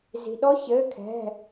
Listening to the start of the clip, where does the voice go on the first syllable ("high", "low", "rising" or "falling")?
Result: low